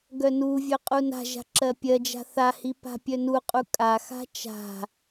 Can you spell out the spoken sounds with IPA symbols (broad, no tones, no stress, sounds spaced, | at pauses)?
ɡ œ n u vʲ œ qʼ u n a̤ ʒ a̤ ǁ ɜ pʲ ɜ d͡ʒ a̤ θ a h i p a̤ pʲ œ n u qʼ u kʼ a x a̤ t͡ʃ a̤